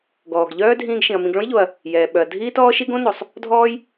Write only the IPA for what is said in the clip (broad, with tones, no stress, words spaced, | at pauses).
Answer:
ɡɔː˩ɡʎœː˥ dʱĩː˧ɡʃĩ˩ɐ̯ mĩ˧ɡ ɭõ˥jʎo˩ɐ̯ | jɛː˩ɓœ˩ɐ̯ dʱiː˥tɔː˥ʃi˥ ɡõ˥ no˩sˤ | dʱɔː˥j